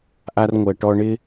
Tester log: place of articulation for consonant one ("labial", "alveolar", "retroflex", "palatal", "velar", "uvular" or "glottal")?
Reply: glottal